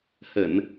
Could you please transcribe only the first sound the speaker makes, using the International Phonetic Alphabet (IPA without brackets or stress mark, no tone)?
h